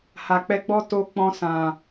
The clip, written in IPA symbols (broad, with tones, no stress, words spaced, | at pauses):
ha˨k͡pɛ˧ɡ͡bɔ˦ to˧ k͡pɔ̃˧sã˨